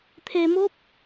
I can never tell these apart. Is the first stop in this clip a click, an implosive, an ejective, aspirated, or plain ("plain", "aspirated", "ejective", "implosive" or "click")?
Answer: aspirated